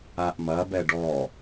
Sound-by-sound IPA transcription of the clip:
a ʔ m ɐ b ɛ ɖ ɔ

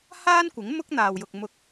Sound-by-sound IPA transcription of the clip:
h aː˥ n kʷ ɪ˨˥ ŋ m ʊ˥ k̚ n̪ aː˨ w j ʊ˨ k̚ m ʊ˨ k̚

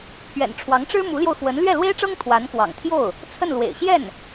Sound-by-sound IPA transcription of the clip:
pʰ ɥ ɛ̰˨˩ n ʈ͡ʂʰ w ɑ˧˥ ŋ ʈ͡ʂ ɻ̩˥ m u˧˥ l j o˧ ʊ̯ x w ə˧˥ n l ɥ ɛ˥˩ l w e˥ ɪ̯ ʈ͡ʂ ɤ˥ ŋ t̪ʰ w a˧˥ n k w ɑ̰˨˩ ŋ t̪ʰ j o˥˩ ʊ̯ | t͡sʰ ə˥˩ n l w ḛ˨˩ ɪ̯ ɕ j ɛ˥˩ n

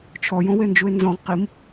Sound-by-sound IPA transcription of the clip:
t͡ʃʰ ɔ j õ w e n d͡ʒ u e̯ n z ɔ̃ ʁ q i m

